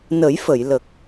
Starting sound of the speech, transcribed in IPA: n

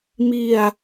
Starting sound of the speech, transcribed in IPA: m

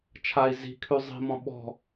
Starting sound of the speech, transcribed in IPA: t͡ʃʰ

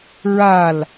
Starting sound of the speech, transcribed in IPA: ɹ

